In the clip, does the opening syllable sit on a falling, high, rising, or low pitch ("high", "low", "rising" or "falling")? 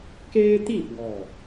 high